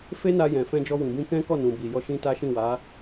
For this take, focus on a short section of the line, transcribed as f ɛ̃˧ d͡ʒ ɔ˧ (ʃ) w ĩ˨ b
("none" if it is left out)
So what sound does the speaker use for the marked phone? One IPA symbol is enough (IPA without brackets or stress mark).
none